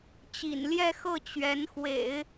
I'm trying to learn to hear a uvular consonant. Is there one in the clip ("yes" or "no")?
no